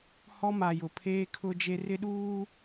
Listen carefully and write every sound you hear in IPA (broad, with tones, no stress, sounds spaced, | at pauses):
h ɔ˦ m a˨ j ʊ˨ pʰ eː˦ kʰ ʊ˦ d͡ʒ e˦ r ɪ˦ ɗ uː˦